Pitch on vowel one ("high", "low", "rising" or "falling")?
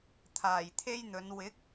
low